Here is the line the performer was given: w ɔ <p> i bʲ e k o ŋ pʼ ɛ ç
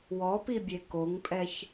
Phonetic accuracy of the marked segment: correct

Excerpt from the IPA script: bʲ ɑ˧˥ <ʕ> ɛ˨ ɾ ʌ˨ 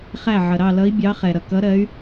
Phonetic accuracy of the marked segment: incorrect: χ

